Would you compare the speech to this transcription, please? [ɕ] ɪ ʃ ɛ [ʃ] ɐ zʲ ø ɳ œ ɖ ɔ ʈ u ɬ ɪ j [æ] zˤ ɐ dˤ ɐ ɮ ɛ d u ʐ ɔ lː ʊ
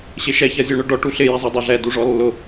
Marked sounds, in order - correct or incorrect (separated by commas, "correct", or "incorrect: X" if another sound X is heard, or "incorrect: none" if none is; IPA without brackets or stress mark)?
correct, incorrect: ç, incorrect: ɛ